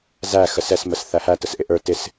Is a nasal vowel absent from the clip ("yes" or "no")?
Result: yes